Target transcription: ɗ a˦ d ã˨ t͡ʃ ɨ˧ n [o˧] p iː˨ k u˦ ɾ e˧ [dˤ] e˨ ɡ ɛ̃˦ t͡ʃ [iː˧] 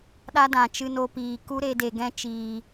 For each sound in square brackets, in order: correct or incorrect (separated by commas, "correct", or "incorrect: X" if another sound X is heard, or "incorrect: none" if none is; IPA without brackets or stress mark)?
correct, incorrect: d, incorrect: iː˨